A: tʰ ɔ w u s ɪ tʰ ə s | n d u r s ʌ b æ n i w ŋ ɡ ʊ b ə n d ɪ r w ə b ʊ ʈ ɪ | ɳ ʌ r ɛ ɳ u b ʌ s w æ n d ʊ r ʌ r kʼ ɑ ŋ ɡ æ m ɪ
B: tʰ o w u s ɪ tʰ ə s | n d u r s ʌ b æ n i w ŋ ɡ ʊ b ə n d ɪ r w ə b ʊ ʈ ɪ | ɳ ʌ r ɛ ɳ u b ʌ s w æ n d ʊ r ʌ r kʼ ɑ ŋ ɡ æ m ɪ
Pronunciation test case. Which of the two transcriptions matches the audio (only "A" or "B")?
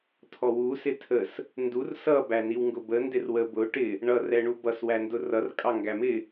A